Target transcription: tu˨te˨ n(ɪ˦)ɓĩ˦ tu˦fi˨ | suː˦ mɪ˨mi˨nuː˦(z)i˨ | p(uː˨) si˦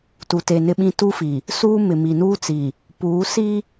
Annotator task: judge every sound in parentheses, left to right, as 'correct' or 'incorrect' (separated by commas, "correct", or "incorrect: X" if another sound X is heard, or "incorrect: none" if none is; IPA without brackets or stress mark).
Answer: correct, incorrect: t͡s, incorrect: uː˨˦